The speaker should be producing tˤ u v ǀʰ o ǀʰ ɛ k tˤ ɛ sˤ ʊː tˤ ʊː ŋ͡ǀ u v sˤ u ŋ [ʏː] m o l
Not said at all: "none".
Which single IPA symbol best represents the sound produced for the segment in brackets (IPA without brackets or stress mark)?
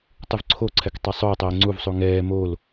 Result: ɛː